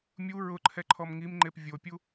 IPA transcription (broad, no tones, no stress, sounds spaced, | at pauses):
mʲ u ɹ ʊ ǃʰ ɛ ǃʰ ɔ m ŋ i m ŋ͡ǃ e p vʲ o pʲ u